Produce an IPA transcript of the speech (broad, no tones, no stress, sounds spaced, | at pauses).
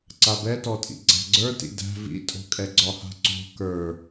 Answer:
ǀ a b ɛ t ɔ tʼ ḭ ɡ͡ǀ æ̤ ɡ͡ǀ ə˞ t ḭ d æ̤ v ḭ tʼ o̤ kʼ ɛ ɡ͡ǀ ɒ h a̤ ǀ o̤ k ə˞